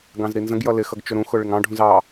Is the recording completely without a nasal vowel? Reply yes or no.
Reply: no